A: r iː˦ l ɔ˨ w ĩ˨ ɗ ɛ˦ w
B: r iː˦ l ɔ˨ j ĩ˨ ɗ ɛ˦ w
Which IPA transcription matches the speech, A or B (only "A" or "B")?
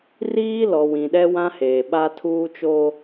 A